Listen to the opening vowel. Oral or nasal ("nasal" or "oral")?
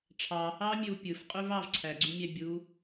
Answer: oral